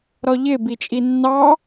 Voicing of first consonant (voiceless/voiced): voiced